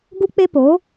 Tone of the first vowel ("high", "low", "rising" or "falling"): high